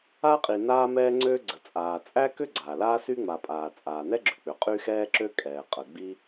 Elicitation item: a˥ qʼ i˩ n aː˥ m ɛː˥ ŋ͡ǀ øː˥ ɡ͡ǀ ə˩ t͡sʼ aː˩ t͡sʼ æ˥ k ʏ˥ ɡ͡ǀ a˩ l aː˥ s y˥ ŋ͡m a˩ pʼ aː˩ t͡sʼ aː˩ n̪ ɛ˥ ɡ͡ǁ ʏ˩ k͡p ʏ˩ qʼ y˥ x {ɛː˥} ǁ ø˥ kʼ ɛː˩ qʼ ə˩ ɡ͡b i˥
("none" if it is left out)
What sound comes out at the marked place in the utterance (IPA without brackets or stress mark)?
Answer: ɛː˥